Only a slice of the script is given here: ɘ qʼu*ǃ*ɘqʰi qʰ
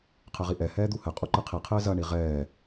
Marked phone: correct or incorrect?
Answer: correct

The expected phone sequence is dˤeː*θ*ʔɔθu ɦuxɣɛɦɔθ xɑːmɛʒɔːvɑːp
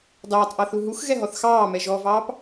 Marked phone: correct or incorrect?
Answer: incorrect: tˤ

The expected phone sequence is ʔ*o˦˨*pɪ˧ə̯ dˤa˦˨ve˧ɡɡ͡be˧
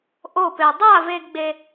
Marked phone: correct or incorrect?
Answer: correct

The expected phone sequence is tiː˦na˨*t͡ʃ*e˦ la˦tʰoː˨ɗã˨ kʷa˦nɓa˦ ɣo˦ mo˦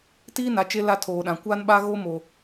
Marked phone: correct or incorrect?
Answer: correct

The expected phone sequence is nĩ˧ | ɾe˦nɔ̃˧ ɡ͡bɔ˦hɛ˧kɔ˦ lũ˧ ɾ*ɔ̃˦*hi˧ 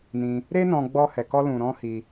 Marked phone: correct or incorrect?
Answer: correct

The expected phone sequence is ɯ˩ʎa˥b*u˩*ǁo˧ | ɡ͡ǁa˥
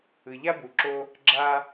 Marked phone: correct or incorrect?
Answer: correct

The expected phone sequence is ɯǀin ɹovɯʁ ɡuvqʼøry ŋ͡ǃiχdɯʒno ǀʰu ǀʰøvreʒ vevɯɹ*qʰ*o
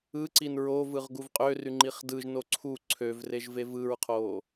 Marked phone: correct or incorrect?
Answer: correct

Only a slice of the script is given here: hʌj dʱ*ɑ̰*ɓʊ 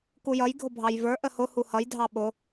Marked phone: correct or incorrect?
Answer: incorrect: ɑ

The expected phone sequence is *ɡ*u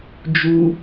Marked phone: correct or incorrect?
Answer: incorrect: d͡ʒ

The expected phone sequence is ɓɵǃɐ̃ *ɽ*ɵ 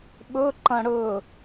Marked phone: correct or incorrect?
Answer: correct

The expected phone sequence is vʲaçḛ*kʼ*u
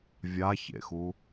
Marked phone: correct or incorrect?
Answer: incorrect: x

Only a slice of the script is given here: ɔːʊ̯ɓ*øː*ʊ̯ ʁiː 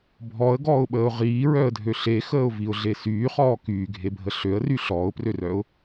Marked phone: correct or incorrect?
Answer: incorrect: əː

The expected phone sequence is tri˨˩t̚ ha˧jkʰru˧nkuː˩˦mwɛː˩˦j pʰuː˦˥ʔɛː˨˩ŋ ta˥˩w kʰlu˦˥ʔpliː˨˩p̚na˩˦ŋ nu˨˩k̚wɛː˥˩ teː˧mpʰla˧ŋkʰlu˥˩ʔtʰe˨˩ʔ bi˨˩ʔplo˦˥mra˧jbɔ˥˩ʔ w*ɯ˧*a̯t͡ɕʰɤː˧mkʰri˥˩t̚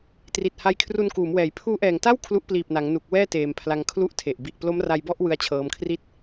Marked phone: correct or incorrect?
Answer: incorrect: ɯ˦˥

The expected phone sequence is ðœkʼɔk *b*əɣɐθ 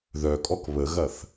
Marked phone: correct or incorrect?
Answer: incorrect: β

